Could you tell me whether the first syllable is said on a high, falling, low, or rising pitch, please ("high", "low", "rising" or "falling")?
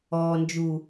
low